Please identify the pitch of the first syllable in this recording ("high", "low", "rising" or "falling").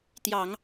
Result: low